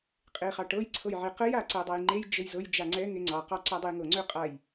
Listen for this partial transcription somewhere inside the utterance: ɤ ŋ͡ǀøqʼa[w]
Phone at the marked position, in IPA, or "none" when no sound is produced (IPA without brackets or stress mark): j